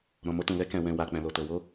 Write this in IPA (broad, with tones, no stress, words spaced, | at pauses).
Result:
ɾɔ̃˨mo˧tũ˨lɛ˨˦ kɛ̃˧wɛ̃˧ wa˨ k͡pɛ̃˨lo˨to˨ wo˧